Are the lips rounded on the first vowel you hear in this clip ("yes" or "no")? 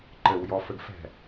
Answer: no